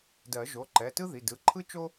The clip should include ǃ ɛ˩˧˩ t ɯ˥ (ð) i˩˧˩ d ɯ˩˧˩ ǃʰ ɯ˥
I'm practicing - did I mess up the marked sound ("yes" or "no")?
no